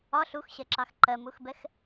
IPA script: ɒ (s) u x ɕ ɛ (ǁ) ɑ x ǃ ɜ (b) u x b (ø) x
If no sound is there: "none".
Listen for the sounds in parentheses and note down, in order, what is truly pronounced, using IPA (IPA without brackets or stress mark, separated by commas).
ɬ, ǁ, m, ɛ